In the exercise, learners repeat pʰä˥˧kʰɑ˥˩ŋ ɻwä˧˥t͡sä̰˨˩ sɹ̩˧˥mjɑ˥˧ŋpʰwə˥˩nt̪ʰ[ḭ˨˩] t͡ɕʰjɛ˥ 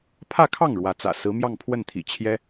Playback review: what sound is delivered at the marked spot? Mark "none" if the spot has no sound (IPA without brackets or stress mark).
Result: ḭ˨˩